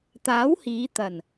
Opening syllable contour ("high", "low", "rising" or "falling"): rising